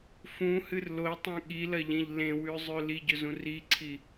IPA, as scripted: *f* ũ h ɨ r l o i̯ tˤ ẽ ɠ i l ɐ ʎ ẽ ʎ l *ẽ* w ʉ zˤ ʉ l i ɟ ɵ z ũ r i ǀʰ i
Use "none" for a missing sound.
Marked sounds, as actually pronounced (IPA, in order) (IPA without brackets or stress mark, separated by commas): f, ẽ